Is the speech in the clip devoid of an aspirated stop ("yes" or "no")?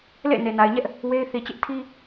no